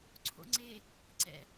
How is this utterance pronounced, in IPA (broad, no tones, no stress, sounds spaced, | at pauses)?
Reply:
ǀʰ o̰ ŋ͡ǀ e | ǀ ɛ̰